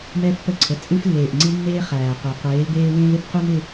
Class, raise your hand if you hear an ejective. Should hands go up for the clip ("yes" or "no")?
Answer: yes